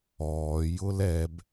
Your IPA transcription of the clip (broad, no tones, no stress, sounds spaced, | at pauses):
ɔː j ʊ l ɛ b